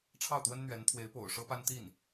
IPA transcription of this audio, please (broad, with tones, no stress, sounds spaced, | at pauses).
ʈ͡ʂʰ ɑ˥˩ ʊ̯ t̪ w ə˥ n n̪ ɥ ɛ˧˥ n t̪ʰ w e˧˥ ɪ̯ p o̰˨˩ ʊ̯ ʂ ɤ˥ p a˥ n t̪ i˥˩ n